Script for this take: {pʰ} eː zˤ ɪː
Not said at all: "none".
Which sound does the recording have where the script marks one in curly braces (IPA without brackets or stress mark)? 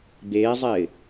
b